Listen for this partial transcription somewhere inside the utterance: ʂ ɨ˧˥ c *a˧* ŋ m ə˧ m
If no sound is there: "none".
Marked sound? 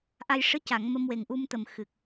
a˨˩˨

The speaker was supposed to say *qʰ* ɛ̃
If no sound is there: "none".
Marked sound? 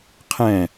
qʰ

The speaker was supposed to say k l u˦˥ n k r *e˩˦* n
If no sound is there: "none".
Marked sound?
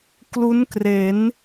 e˩˦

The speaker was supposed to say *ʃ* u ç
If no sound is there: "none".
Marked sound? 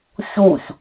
ç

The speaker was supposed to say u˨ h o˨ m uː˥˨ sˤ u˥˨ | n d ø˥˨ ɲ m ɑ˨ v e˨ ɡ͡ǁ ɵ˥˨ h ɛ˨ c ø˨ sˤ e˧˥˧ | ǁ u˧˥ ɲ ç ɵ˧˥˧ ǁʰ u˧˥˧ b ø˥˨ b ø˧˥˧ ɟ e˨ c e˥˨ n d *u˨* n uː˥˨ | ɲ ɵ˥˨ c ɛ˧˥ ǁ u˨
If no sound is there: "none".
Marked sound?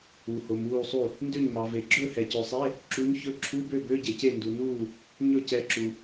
u˨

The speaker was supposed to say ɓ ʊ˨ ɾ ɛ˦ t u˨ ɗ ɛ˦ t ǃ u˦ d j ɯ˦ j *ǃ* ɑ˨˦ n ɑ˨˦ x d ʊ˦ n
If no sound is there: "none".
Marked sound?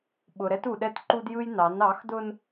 n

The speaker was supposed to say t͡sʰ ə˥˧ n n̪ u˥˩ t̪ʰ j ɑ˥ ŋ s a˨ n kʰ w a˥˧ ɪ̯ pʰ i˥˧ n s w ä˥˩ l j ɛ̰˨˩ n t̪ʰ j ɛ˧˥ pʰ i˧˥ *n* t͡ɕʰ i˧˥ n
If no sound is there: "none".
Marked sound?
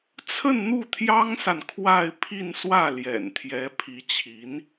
none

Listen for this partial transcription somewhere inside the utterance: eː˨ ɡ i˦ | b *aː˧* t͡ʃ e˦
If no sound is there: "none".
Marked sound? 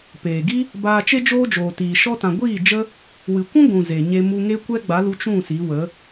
aː˧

